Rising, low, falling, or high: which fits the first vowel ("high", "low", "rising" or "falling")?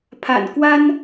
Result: low